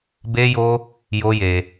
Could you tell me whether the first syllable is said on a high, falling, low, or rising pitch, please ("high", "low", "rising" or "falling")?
high